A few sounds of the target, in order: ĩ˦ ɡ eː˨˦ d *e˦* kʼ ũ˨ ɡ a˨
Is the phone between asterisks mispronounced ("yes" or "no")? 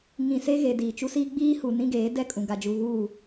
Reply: yes